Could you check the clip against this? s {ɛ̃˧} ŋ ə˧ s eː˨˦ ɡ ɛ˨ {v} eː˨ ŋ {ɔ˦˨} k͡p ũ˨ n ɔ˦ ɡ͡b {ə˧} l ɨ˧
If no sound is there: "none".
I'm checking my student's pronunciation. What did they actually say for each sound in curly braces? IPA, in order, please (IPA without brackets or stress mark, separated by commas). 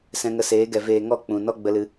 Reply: ɛ̃˧, v, ɔ˦˨, ə˧